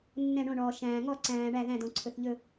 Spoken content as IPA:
nː ɛ̃˧˩ ɳ õ˧˩ ɳ ɔː˩ ʃ æ̃ː˩ ŋ ɔ˧˩ ǀ æ̃ː˩ ɳ æ˧˩ ð æ̃˧˩ d õ˩ ǀʰ ɵ˩ θ ʎ ɵ˧˩

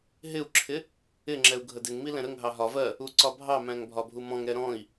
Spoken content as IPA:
ɦ ɪ u̯ ǁʰ ɪ | ɪ ŋ͡ǁ ɛ u̯ ɡʱ ə d ɪ ŋ m i l ɛ̃ ɾ ə ŋ ɦ ɑ ɦ ɒ v ɜ | u ǀ ɒ bʱ ɑ m æ̃ ŋ bʱ ɒ bʱ u m ɔ̃ ŋ ɾ ɛ ɾ ɔ̃ i̯

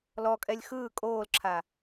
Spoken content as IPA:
l ɔ kʼ ɛ lʲ x ɯː kʼ oː l ǁʰ a

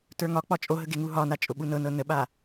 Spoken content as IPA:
t ə˞ ŋ ɒ k͡p ɒ t͡ʃʼ o ɦ ə ɡ e ŋ u ɦ ɒ n a t͡ʃʼ ʊ ɓ u n ɤ n ɤ n ə ɓ a

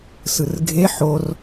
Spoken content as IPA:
s ɯ r ɡʱ e ħ o r

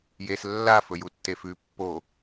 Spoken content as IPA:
j e s lː a f ɵ j u tː e f ʉ pː o

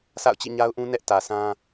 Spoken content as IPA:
sʰ a̰˦˨ ʊ̯ t͡ɕ ḭ˦˨ ɲ a˦ ʊ̯ ʔ ũ˦ n ɛ˦ ʔ t ä˨ s ã˦

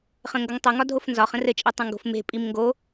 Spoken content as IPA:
χ ə̃ ŋ ɡ ʌ ŋ tˤ ʌ ŋ ɒ dʱ o f n z ɒ χ ə̃ r ɘ t͡ʃʼ e tˤ ə̃ ŋ ɡ o̤ f m e̤ pʼ i m ŋ ɡ o

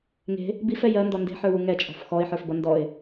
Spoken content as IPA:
ŋ e̤ | b i f ɛ j ɜ n d ɔ n d e̤ ħ ə˞ w u ŋ ɛ t͡ʃʼ ɔ̤ f x ɔ ɪ̯ ħ ə˞ f b ʌ n d ɔ ɪ̯

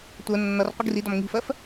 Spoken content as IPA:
tʷ ɜ nː ʌ r qʷ ə ɡ r i d ɒ m ŋ i̤ f ɜ f

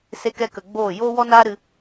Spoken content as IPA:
s e˦ k ɛ˦ k ə˧ ɡ͡b oː˦˨ j oː˦ w ɔ˦ n aː˦ ɾ ɨ˧

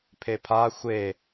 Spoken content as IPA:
pʰ e pʰ a xʷ e

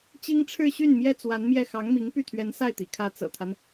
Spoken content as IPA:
t͡ɕ i˥ ŋ ʈ͡ʂʰ ɻ̩˥˧ ɕ y˥˩ n m j ɛ˥ t͡s w a˧˥ n m j ɛ˥˩ x ɑ˧˥ ŋ m i˧˥ ŋ p y˥˩ t̪ʰ ɥ ɛ˧˥ n s a˥˩ ɪ̯ t̪ ḭ˨˩ kʰ ä˧˥ t͡s ɤ̰˨˩ t̪ʰ a˦ n

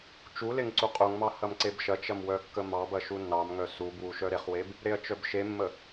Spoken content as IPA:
t͡ʃ u l e ŋ ǀ u qʼ u ŋ m ɑ h ɐ m ǀ e b ʃ ɐ t͡ʃ ɐ m w œ kː ə m ɑ b ɐ ʃ u nː ɑ m ŋ œ s u b w u ʃ œ ɾ e χ w e b | ɾ e ɐ̯ t͡ʃ œ b ʃ e mː ə

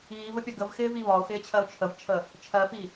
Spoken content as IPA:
iː v ə pʲ ɒ ɡ ə v x ɪː v i β ɒ ʊ̯ x ɪː t͡ɕʰ ɜ ʊ̯ t͡ʃʰ ə v t͡ʃʰ ə | t͡ʃʰ ɜ f i

